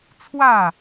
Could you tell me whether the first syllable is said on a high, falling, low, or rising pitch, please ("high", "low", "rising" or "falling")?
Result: falling